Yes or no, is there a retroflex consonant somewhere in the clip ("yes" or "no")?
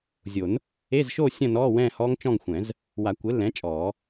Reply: no